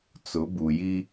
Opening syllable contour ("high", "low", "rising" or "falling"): rising